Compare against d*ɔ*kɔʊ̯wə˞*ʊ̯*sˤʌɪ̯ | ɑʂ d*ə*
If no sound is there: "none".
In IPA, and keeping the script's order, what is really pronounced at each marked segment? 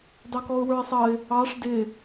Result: ɑ, ɪ̯, ɪ

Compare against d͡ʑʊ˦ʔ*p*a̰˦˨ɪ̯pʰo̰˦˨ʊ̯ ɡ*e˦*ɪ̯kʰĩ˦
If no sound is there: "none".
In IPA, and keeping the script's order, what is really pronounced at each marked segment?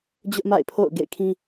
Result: m, ḛ˦˨

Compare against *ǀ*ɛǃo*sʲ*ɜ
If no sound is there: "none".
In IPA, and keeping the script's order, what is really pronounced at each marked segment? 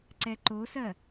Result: ǀ, s

